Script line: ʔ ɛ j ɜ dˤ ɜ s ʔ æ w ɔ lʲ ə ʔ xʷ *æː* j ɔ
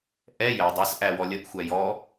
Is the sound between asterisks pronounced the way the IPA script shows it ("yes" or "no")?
no